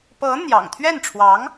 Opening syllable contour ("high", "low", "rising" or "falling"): rising